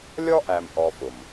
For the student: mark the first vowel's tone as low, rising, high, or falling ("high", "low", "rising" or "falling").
high